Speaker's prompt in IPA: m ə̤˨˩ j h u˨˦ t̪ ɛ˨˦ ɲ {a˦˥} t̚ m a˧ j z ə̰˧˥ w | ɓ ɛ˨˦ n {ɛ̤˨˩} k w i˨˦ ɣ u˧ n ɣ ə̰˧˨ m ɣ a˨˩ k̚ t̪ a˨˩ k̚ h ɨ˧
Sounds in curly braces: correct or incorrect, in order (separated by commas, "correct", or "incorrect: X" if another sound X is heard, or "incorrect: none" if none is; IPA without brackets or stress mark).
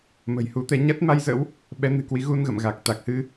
correct, incorrect: ɨ̤˨˩